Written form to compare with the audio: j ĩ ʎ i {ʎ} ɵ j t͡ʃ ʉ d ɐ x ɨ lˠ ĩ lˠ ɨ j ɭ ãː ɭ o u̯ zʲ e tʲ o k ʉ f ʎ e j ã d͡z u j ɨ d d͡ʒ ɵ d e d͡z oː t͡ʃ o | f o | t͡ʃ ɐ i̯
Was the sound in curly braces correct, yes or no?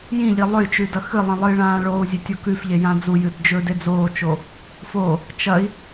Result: no